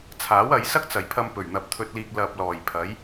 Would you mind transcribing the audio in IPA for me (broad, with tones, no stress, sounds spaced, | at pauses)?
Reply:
t͡sʰ aː˨˥ w ɐ˨˧ j s ɐ˥ k̚ t͡s ɐ˨˩ j pʰ ɐ˧ m p ɵ˨˩ ɥ n̪ ɐ˨ p̚ t̪ʰ ɵ˧ t̚ l iː˧ k̚ l ɐ˨ p̚ l ɔː˨˩ j pʰ ɐ˨˥ j